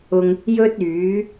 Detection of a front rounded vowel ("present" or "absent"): present